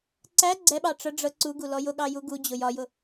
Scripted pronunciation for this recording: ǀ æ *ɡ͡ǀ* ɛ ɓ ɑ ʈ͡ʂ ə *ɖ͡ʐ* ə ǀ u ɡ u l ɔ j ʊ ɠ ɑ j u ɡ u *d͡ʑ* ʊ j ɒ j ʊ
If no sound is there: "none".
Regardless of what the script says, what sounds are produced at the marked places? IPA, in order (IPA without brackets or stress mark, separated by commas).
ɡ͡ǀ, ɖ͡ʐ, d͡ʑ